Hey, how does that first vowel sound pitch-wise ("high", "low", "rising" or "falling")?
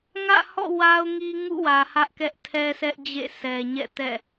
falling